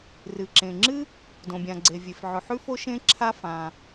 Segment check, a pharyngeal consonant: present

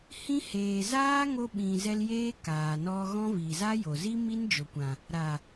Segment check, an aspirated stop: absent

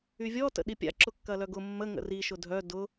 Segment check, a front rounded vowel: present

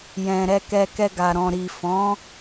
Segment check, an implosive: absent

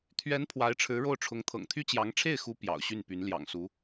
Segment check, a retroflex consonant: present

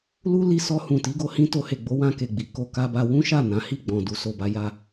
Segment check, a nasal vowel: present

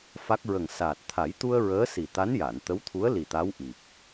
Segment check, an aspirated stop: present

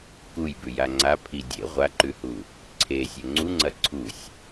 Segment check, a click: present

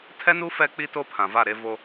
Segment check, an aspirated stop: present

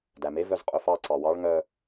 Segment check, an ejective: present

